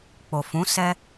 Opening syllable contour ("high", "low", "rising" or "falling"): low